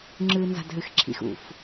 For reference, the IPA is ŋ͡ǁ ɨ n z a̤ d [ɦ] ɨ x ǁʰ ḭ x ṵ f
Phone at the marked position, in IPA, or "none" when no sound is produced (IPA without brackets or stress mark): ɦ